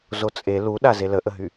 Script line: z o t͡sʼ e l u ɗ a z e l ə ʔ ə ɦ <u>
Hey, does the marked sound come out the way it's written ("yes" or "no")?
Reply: no